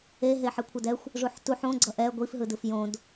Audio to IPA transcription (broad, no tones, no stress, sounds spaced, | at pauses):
e ɦ e ħ e kʷʰ ʌ d ɛ xʷ | ʐ u ħ t u ħ õ ɡ͡ǀ ʌ ʔ ɛ ɡʷ i f ɦ ɯ d ɯ f j õ d